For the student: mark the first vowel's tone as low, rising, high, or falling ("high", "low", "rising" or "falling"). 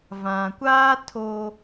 low